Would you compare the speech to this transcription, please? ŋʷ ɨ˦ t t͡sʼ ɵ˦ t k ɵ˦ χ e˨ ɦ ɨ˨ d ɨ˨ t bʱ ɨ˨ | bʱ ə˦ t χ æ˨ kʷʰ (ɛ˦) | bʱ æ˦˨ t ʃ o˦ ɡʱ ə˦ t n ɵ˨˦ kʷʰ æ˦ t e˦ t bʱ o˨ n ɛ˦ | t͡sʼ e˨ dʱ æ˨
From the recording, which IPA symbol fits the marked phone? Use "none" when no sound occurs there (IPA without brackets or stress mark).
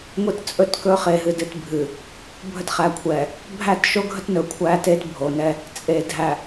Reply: ɛ˨